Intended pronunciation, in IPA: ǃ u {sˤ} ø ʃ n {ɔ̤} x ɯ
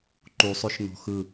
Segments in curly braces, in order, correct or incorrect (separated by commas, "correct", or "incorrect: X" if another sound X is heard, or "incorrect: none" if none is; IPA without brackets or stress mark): correct, correct